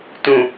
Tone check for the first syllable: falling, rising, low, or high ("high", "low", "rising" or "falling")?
low